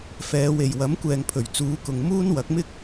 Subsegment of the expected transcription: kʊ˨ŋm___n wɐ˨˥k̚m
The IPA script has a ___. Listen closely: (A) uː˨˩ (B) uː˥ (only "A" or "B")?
B